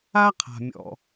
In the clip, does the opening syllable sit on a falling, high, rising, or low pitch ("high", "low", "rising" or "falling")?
high